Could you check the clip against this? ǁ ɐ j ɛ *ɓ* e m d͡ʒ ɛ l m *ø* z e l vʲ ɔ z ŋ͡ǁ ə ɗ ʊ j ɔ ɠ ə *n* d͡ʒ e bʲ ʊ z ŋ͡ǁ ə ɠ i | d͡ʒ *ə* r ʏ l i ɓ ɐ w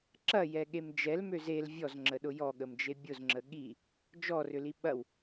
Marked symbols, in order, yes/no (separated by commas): no, yes, no, no